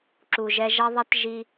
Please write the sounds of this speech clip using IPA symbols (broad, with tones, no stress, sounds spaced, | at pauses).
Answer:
ǁ u˨ ʒ ɛ˧ ʒ ɐ˦ ðˤ ɛ˦ t ʒ i˧